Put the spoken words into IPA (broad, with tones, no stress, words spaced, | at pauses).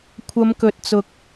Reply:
kʷʰɐ˨˧mkɵ˨t̚t͡sʊ˨k̚